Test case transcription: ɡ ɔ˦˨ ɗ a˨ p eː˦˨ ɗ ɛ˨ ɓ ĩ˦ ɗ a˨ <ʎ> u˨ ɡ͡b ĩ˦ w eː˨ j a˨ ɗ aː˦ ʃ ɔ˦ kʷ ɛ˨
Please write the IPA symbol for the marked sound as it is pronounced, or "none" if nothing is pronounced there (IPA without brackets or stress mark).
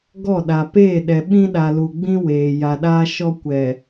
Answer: l